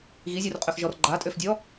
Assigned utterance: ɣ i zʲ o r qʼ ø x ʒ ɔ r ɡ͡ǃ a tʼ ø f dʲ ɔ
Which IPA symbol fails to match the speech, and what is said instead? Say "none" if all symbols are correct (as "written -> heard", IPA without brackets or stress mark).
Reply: none